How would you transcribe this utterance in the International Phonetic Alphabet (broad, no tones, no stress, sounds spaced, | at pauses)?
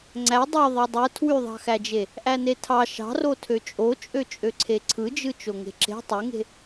ŋ͡ǀ æ dˤ ø ðˤ e dˤ ɯ tʰ w y ðˤ ɑ̤ x æ d͡ʒ e | ʔ æ n e tʰ ɑ ʃ ɑ̤ r o tʰ ø t͡ʃʼ o t͡ʃʼ ø t͡ʃʼ ø ǀʰ e ǀʰ ɯ d͡ʒ ɯ t͡ʃ o ŋ e̤ ǁ e̤ tˤ y ŋ e̤